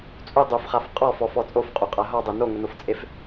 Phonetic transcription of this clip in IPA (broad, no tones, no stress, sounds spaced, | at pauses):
t͡sʼ u dˤ u f χ a f qʼ ɔ f ɔ f ɔ t͡sʼ o f qʼ o qʼ a ɦ ɔ dˤ e n o ŋ ʊ n o f t͡sʼ e f